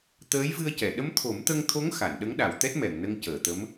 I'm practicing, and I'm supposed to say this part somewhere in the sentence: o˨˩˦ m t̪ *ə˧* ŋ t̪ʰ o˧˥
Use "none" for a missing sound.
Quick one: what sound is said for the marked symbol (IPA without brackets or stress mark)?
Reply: ə˧